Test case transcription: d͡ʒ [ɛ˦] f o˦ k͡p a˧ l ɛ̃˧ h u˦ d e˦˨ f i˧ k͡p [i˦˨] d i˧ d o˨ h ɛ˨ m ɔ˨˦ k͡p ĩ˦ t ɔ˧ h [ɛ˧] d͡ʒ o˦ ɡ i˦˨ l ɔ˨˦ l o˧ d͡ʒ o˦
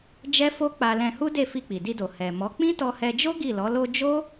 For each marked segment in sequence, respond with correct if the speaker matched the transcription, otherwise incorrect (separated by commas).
correct, incorrect, correct